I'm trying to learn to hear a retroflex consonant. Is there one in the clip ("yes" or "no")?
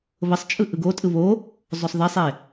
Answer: no